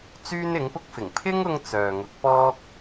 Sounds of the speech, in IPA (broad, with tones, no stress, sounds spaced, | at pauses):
t͡s yː˥ n ɪ˨˥ ŋ p ʊ˥ k̚ f ɪ˨˩ ŋ pʰ ɪ˥ ŋ ʊ˥ ŋ t͡s œː˨ ŋ ʊ˨˥ k̚ p ɔː˥ k̚